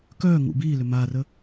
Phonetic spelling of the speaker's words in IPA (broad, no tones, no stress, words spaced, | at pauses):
kœː ŋṵ biːlʏ maːrə